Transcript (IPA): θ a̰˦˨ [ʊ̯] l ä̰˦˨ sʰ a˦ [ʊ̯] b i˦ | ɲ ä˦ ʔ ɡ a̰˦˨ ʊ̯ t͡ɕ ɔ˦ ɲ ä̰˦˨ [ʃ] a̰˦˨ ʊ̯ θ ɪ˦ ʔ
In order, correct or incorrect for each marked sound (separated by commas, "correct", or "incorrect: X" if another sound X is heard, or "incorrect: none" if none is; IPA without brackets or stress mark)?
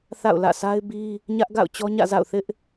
correct, incorrect: ɪ̯, incorrect: z